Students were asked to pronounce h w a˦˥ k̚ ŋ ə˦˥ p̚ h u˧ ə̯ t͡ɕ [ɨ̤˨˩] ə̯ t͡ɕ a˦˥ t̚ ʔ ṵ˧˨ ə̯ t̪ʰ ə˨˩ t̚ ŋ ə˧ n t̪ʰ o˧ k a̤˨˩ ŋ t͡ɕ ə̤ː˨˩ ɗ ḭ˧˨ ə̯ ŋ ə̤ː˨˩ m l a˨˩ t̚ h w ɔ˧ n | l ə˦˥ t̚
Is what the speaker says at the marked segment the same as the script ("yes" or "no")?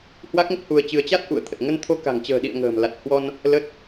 no